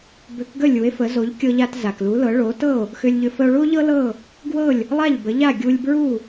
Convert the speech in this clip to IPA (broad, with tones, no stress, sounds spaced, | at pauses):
b ʏ˩˥ k ɡ ə˥˩ lʲ u˩˥ e̯ f ə˩˥ z o˩˥ ʎ kʲ ɤ˧ ʎ a˧ t z a˩ k l u˩˥ l ɤ˩˥ ɭ o˩˥ t ɤ˥˩ o̯ | x ʏ˧ lʲ ʎ ʏ˧ f ə˧ o̯ ɭ u˥ o̯ ʎ ɤ˥ l ɤ˥˩ | ɡ w ɤ˥˩ lʲ | lˠ a˥˩ ʎ b ə˩˥ ʎ a˥˩ ɡʲ u˧ lʲ b ɹ u˥˩